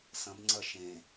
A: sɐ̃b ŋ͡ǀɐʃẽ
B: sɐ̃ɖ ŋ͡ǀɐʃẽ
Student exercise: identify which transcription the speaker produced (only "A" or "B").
A